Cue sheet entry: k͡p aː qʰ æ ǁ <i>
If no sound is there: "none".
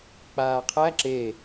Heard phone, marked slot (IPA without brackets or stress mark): e